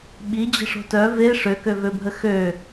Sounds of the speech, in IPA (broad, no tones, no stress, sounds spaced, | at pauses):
ɓ i d͡ʑ ə̤ ʂ o̤ t œ v e ʂ ø k ø v ø bʱ ə x ø